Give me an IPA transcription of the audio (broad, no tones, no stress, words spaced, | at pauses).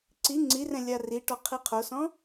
ǀi ŋ͡ǀirɛ̃ lʲariʈɔ qʰiqʰosɔ̃